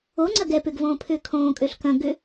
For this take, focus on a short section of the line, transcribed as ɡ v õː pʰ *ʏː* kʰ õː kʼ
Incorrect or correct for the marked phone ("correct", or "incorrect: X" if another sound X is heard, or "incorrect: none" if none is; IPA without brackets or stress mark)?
correct